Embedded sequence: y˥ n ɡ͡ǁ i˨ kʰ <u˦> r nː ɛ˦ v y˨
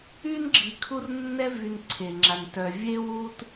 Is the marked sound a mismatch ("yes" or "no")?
no